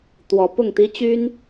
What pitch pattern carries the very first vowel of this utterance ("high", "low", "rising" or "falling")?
rising